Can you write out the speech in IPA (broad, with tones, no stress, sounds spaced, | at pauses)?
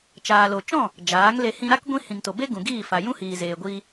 t͡ʃ aː˨ l o˨ t͡ʃ ɔ̃˦˨ | d͡ʒ aː˨˦ ŋ l e˧ h ĩ˧ ɾ a˦ k ɡʷ ĩ˦ h ĩ˨ ŋ t o˨ b e˦ ɡ ũ˨ ɡ iː˦˨ f a˨ j ũ˦ h iː˨ z eː˨ ɡʷ iː˧